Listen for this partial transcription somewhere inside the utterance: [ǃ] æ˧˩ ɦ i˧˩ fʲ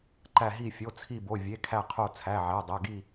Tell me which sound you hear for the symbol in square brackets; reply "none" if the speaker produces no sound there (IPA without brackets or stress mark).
ǃ